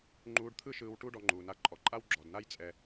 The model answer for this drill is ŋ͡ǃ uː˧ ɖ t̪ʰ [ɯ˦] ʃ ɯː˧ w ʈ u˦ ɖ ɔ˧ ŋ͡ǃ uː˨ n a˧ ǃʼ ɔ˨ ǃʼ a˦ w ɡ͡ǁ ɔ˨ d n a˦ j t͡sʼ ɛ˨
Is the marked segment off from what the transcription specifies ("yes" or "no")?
no